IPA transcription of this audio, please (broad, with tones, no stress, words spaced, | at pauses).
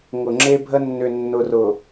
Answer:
ŋʊ˨ŋ͡ǁe˦bʱə˦ nːʏ˨nːʊ˨rʊ˨